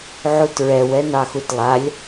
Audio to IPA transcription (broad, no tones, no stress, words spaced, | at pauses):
ʕutɹɛw ɛnɑxutlˠalʲ